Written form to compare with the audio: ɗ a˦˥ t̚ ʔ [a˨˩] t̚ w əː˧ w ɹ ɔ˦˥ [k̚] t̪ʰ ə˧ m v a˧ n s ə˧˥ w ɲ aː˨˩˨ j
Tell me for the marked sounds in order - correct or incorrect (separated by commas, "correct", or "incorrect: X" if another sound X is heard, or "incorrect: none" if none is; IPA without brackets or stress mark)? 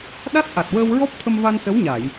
correct, incorrect: p̚